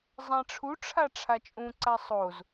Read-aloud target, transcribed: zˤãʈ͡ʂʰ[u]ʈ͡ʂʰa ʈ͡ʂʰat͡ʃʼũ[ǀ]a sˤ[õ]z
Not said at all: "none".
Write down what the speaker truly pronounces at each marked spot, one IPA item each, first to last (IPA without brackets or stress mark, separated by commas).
u, ǀ, o